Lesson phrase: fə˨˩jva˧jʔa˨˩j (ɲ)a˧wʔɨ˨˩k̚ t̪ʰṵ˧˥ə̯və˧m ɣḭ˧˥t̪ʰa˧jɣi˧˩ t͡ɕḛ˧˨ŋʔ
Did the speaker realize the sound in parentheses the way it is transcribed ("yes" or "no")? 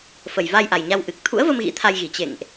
yes